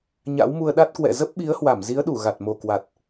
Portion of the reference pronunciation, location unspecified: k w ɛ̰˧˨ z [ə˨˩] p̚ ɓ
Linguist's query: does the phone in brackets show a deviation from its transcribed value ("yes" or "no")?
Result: yes